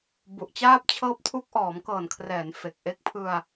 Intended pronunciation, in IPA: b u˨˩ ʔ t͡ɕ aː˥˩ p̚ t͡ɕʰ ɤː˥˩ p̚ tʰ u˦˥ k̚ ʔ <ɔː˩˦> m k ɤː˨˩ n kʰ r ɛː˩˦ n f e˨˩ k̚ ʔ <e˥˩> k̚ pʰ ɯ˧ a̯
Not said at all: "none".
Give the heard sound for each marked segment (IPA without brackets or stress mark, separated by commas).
ɔː˩˦, e˥˩